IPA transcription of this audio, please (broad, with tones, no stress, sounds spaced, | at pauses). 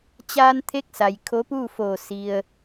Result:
t͡ɕ aː˧ n t̪ʰ e˧˥ k̚ s a˩ j kʰ o˧˥ p uː˥˨ f oː˧˩ s i˩ ə̯